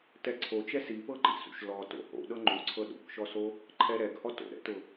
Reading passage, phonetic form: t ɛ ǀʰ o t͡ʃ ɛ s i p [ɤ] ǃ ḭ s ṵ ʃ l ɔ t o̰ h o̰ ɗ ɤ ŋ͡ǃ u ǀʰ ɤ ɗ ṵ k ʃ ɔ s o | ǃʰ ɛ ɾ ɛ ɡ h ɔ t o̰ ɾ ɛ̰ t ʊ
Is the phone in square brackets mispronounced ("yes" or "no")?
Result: no